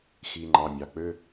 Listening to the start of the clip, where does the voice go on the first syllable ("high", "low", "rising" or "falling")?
low